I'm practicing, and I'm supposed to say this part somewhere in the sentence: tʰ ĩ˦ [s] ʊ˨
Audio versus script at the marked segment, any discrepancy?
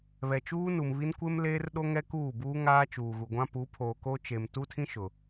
yes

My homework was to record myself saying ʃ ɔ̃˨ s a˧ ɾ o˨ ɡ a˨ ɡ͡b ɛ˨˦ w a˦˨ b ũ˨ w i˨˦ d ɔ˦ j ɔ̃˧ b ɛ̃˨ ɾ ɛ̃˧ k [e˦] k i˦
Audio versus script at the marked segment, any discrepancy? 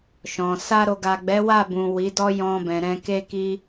no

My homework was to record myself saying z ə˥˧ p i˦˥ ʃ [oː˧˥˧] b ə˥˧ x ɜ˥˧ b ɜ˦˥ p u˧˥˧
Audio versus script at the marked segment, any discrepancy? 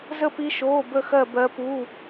no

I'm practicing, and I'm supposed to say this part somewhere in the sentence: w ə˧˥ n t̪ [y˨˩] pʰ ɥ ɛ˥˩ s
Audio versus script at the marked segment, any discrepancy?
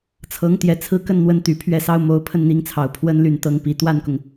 no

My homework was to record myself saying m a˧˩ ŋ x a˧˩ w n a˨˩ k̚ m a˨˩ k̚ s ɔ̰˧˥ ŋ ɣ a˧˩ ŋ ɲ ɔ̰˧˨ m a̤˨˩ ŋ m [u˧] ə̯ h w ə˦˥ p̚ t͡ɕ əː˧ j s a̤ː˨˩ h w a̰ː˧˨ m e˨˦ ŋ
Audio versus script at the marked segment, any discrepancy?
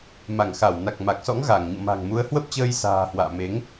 yes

